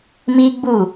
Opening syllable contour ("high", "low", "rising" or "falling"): high